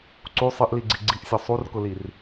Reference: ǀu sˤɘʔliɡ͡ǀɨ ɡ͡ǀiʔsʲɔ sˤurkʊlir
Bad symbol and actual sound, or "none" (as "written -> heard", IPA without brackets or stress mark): ɨ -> i